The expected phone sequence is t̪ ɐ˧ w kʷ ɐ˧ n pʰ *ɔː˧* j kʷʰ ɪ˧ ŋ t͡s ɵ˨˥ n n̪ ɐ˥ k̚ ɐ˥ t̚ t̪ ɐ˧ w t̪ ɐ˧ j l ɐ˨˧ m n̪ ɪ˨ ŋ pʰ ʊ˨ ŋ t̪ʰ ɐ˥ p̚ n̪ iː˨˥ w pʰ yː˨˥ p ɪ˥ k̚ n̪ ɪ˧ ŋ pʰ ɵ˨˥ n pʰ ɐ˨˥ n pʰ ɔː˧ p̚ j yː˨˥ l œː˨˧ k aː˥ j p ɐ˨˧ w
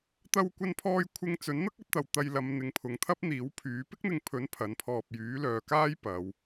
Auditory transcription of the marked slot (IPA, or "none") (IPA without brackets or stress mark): ɔː˧